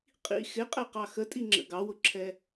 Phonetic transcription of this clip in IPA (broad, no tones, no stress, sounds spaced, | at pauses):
qʼ ḭ x ɪ qʼ ɛ q ɑ x ə tʼ i ŋ͡ǁ ə̰ ɡ ɑ w ʊ ǁʰ ɛ